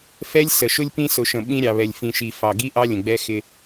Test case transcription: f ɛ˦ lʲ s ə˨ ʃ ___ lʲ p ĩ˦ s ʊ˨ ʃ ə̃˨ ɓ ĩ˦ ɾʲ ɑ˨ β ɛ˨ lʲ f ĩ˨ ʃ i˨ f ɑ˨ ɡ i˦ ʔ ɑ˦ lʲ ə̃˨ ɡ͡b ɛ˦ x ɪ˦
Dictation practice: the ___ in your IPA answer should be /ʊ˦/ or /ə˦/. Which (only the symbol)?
ʊ˦